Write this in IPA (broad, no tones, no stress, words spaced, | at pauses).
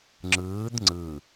ŋ͡ǁɯːd ŋ͡ǀɯ